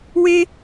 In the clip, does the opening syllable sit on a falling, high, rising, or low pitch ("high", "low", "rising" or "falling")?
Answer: high